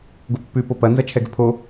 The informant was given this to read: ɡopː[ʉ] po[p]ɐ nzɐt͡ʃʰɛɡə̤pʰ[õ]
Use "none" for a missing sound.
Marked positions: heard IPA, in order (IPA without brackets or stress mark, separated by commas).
ʉ, p, o